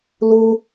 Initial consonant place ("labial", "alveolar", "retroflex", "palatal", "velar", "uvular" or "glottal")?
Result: alveolar